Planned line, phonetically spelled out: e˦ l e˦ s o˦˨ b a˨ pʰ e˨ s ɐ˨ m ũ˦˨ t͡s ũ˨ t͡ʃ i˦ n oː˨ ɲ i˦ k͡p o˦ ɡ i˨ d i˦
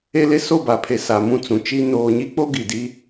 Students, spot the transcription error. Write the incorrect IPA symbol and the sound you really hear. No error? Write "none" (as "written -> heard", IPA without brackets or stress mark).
ɐ˨ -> a˨